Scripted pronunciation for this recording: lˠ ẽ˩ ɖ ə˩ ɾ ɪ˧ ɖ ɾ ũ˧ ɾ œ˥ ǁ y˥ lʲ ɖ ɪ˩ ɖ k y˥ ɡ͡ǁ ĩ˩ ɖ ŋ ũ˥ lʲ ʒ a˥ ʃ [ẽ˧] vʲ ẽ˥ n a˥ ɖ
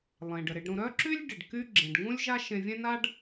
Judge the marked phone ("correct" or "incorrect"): correct